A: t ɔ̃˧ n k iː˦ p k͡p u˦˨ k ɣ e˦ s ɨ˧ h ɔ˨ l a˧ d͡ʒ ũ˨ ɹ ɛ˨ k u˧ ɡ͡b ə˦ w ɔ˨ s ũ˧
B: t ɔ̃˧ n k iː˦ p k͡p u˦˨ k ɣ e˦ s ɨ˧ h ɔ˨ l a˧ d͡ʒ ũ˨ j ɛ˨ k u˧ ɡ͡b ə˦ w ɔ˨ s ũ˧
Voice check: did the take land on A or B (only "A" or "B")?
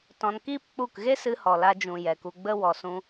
B